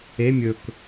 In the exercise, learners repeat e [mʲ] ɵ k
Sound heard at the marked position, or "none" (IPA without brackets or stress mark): mʲ